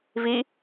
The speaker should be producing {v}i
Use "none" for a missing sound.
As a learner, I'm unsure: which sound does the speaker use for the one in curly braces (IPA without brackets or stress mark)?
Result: v